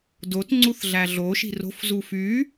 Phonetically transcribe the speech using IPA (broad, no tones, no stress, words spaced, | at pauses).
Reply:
dot ŋ͡ǀuθɮæɮo ʃi̤ro̤f zufy